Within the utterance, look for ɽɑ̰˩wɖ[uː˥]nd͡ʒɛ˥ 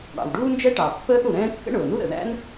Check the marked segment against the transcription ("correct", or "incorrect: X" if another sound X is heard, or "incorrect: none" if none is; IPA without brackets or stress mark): correct